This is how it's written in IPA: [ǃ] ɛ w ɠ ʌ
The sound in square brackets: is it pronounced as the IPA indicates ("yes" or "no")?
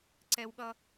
no